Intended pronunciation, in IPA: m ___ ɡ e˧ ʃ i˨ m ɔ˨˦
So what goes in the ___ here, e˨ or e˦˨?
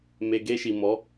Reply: e˨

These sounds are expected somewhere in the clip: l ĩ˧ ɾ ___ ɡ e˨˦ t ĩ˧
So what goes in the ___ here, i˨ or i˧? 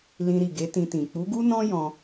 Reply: i˨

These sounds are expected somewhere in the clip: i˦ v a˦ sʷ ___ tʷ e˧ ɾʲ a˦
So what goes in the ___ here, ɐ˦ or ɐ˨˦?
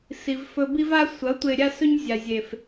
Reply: ɐ˨˦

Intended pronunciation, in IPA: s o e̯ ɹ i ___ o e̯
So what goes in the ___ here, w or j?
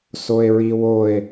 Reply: w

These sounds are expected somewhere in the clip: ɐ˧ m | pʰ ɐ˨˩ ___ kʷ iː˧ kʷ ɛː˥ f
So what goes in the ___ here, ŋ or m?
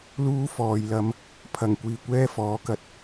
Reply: ŋ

